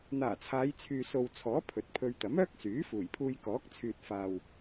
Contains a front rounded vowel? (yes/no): yes